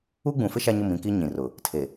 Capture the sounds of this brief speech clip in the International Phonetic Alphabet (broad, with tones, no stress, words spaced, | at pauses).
u˦ɡ͡bũ˨fɪ˦ ʃa˦ɲʊ˦˨mĩ˦˨ki˦ ɲĩ˨rʊ˨ | tʰe˨